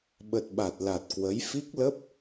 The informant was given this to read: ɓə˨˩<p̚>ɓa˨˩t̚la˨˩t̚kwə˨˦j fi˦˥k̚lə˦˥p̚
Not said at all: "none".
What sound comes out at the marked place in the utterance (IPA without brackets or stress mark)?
t̚